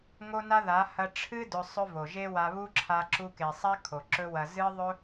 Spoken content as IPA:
ŋ o˦ n a˦ ð a˨˦ h ɐ˧ ʈ͡ʂʰ ɨ˦ d ɵ˧ sˤ ɵ˦ v o˨ ʒ e˦ w a˧ β u˦ ǁʰ a˧ ǁ u˧ k e˨ sˤ a˦ kʰ o˨ ǁ ɵ˦ w ɐ˧ z ɨ˦ ðˤ ɵ˦

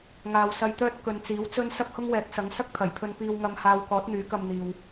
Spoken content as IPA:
ŋ aː˨ w s ɐ˧ j t̪ œː˥ t̚ k ɵ˨ n t͡s iː˨˥ w t͡s ɵ˥ n s ɐ˥ p̚ h ʊ˥ ŋ w ɛː˨˥ k̚ s ɐ˨˥ ŋ s ɐ˥ k̚ t̪ʰ ɐ˨˩ j pʰ ɵ˧ n p iː˧ w ŋ ɐ˧ m h aː˧ w k ɔː˨˥ t̚ n̪ yː˨˥ k ɐ˧ m n̪ iː˨ w

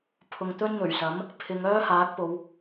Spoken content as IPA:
pʰ ʊ˨ ŋ t̪ ɵ˥ n n̪ ɵ˨˩ ɥ s ɐ˨˥ m | pʰ ɪ˨˧ ŋ œː˥ h aː˨˥ k̚ p o˨˧ w

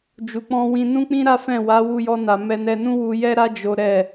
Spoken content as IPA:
d͡ʒ u˨ k͡p ɔ̃˧ w ĩ˧ n ũ˦ k͡p ĩ˦ ɾ a˦ f ɛ̃˦˨ w a˨˦ w u˧ j ɔ˧ n a˨ m ɛ˧ n ɛ˧ n ũ˦ w u˧ j ɛ˦ ɾ a˦ d͡ʒ o˦ ɾ ɛ˦˨

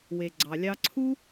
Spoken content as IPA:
w e˨ ɡ͡ǀ ɑ˨ lʲ ɑ˧ ǀʰ u˦

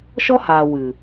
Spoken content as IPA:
ʃ ɔ˦ h aː˨ w ɨ˨

